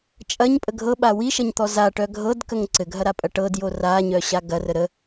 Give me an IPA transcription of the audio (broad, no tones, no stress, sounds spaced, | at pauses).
t͡ʃʼ ɐ ɲ pʼ ə ɡʱ ɤ ɓ a w i ʃ ɐ ɲ t̪ ɔ z a ʈ œ ɡʱ ɤ d k ə ŋ ǀ ɘ ɡʱ ɐ ɾ a pʼ ɐ ʈ ɤ d j o r a ɲ œ ɕ a ɡ ɐ r ə ɾ ə